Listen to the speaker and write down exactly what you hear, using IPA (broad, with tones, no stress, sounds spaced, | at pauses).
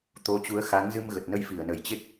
t̪ o˨˦ t͡ɕ u˨˦ ə̯ x a˨˦ ŋ z ɨ˧ m ɣ ə˨˩ t̚ n ə˧ j f i˧˩ ə̯ n ə˧˩ j t͡ɕ e˦˥ k̚